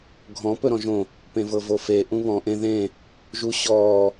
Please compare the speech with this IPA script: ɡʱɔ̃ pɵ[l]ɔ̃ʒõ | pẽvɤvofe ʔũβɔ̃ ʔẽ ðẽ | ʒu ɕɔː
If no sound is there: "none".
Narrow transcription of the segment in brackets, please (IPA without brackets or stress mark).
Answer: ɾ